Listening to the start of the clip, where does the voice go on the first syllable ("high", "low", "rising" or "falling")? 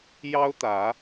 high